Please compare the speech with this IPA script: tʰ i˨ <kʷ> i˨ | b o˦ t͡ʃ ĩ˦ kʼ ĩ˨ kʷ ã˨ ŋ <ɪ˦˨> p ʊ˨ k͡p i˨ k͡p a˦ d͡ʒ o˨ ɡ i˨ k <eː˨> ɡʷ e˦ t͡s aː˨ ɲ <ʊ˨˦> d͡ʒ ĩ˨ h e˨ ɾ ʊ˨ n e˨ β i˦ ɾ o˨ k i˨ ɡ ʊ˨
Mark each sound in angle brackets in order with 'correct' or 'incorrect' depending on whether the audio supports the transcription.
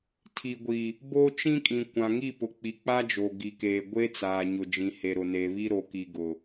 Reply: incorrect: ɡʷ, incorrect: i˦˨, correct, incorrect: ʊ˨

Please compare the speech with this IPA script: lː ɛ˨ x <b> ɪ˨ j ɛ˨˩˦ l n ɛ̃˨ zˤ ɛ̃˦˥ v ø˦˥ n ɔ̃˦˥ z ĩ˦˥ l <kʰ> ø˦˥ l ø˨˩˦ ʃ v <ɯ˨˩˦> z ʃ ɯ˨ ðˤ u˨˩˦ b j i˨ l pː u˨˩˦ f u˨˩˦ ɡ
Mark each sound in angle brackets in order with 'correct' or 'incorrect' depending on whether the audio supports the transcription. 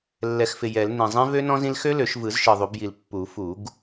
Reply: incorrect: f, incorrect: x, correct

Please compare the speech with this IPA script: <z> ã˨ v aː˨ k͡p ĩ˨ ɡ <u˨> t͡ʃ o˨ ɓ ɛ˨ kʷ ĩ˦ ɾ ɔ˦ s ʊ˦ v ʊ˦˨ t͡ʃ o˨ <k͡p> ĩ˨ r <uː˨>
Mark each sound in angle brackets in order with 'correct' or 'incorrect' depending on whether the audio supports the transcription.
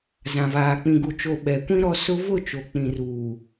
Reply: correct, correct, correct, correct

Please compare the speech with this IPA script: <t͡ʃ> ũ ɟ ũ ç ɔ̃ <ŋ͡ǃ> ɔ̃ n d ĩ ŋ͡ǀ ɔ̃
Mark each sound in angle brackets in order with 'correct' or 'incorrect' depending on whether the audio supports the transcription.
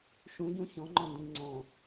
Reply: incorrect: ʃ, correct

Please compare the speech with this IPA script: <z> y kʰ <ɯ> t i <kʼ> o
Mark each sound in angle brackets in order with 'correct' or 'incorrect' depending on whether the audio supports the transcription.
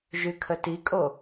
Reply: incorrect: ʒ, incorrect: ə, correct

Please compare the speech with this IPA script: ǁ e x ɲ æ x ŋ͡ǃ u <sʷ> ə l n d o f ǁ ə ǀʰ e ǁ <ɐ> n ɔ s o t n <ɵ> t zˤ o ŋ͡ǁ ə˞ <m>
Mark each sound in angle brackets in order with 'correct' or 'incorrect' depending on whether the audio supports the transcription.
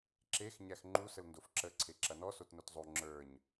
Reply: incorrect: s, correct, incorrect: o, incorrect: ɲ

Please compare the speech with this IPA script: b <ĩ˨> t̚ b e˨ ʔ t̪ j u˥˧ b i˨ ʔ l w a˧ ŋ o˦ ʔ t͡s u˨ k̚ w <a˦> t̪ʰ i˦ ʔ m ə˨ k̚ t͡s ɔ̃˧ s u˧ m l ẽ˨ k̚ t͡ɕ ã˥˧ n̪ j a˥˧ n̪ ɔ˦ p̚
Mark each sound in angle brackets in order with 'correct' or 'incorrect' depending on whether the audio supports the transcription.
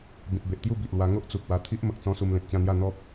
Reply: correct, incorrect: a˧

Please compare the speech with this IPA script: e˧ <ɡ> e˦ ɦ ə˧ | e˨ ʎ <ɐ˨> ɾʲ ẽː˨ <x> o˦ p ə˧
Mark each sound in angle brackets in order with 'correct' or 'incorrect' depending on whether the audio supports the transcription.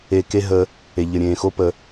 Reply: incorrect: k, incorrect: ə˨, correct

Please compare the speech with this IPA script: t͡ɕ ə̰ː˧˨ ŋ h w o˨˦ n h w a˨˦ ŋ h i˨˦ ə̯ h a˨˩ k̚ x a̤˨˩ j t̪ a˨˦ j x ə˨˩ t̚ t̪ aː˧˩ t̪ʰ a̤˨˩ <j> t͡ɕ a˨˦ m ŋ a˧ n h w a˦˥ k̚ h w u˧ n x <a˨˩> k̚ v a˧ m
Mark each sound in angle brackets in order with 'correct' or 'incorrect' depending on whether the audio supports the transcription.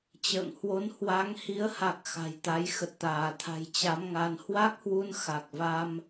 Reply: correct, correct

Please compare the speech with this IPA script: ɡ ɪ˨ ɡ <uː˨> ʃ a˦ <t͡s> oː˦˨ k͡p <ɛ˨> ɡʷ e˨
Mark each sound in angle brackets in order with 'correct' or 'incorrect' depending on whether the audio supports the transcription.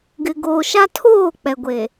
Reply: incorrect: oː˨, incorrect: tʰ, correct

